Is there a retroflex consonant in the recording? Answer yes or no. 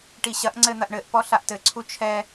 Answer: yes